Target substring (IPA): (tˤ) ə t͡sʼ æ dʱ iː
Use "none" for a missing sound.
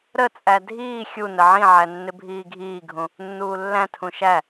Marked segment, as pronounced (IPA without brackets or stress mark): ɾ